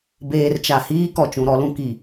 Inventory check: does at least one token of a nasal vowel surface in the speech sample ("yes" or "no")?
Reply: yes